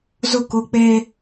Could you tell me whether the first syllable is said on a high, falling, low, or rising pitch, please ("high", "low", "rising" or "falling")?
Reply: falling